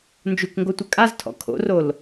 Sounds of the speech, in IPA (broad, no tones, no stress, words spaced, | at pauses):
nd͡ʒukŋɡotʷɨ kʼaztʰɔ̰ kʰo̰rol